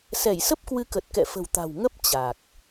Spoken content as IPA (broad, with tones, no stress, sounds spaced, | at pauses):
s ɛ˧˩ j s ə˦˥ p̚ k w ɨ˨˦ k ə˨˩ t̚ k ɛ̰˧˨ f ə̤˨˩ w t̪ a̤˨˩ w ŋ ə˦˥ p̚ t͡ɕ a˨˩ k̚